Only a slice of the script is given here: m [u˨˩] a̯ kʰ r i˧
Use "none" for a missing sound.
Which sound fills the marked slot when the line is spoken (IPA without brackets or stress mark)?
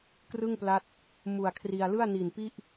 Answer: u˨˩